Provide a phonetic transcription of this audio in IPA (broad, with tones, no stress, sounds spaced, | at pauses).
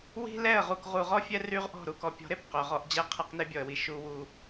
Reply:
w i̤˦ l ɛ˦˨ ə̯ ʁ u˨ k ʁ u˨ ʁ ɔ˦ fʲ ɛ˦ r y˦ ʁ ʔ ɔ̤˦˨ ɾ u˨ k ɔ˨ pʲ ɔ̤˨˦ ɾ e˨ p q œ˨ ʁ ɔ˦ ʔ d͡ʑ ɛ˦ qʰ ɛ˦ q n e˦ bʲ ɔ˨ ə̯ w i˨ ʃ u˦ w u˦